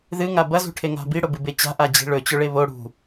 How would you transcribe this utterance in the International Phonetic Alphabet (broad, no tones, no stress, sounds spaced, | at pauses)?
ð ɨ ŋ a b ɐ z ṳ ʈʰ e ŋ a̤ b i ɽ o b ɨ b e t͡ɕ a̤ ʔ a d͡ʑ i̤ ɭ ɵ t͡ɕ ɵ ɭ e β o ɽ ṳ